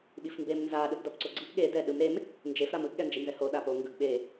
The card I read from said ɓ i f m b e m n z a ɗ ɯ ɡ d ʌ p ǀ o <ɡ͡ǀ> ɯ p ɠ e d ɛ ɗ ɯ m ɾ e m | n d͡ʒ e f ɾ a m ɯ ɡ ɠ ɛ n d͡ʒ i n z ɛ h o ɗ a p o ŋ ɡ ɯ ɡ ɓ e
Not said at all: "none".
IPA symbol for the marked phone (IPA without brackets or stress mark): ɡ͡ǀ